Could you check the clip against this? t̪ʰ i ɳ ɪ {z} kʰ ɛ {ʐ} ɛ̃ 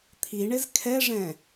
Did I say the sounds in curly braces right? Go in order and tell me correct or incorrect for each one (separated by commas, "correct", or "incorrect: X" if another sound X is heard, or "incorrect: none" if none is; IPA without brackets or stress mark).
correct, correct